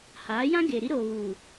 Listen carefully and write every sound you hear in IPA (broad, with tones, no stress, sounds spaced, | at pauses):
h aː˨˦ j ã˦ ɡ e˨ ɾ i˦ ɾ oː˨ β uː˨